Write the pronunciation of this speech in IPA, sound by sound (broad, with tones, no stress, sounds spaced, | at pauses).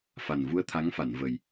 f a˨˩ n v u˧ ə̯ t̪ʰ a˧˥ ŋ f a˨˩˨ n v ə˨˩ j